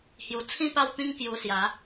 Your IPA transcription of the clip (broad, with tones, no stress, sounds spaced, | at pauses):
h j u˨˩ t͡sʰ ĩ˥˧ p a˥˧ w t̪ ĩ˦ ŋ k j u˧ s j a˨˦